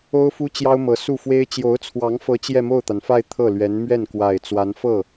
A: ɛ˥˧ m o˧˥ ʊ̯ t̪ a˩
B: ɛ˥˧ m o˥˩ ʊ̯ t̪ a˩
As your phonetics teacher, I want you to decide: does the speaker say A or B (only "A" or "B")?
B